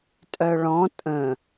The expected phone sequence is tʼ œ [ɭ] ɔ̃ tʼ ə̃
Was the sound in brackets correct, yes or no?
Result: yes